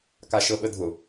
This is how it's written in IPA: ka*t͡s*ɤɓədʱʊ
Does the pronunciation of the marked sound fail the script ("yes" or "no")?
yes